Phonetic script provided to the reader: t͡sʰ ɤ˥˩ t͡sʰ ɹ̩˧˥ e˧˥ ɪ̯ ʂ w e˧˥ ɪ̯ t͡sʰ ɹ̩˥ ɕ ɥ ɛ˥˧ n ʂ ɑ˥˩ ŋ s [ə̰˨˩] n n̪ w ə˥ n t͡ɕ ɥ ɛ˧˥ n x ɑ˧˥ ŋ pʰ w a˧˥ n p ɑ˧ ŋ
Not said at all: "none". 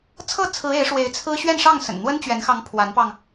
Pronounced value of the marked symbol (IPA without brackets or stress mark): ə̰˨˩